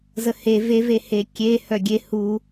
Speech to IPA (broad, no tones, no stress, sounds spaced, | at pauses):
z ə h e v e v e h e kʲ e h œ ɡʲ e h u